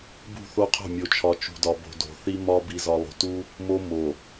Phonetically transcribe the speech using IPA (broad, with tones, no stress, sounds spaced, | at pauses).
b ṳ˦˨ θ o˦ qʰ o̤˦˨ mʲ o˨ t͡ʃʰ ɒ˨ t͡ʃ ṳ˨ d ɒ˨ b o̤˨ d o̤˨ θ i˦ m ɒ˦ b i˨ z ɒ˨ lˠ o̤˨ t u˦ | m o˦ m o˨